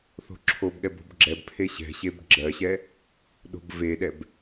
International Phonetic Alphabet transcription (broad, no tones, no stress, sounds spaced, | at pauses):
θ o̤ ǁʰ o b ɠ ɛ b o̤ b ɡ͡ǁ ɛ b pʰ e ɕ ɛ̤ ɕ e b ɡ͡ǁ ɜ ɕ ɛ | ɗ o̤ b v e ɗ ɛ b